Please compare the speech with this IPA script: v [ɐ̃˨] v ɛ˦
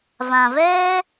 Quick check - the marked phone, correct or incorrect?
incorrect